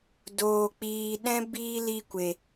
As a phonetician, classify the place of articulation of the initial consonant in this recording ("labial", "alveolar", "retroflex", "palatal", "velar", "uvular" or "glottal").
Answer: alveolar